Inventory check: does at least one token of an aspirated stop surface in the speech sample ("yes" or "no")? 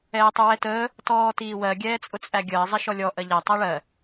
no